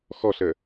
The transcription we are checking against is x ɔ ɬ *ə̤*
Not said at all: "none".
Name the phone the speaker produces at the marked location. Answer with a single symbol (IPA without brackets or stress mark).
ə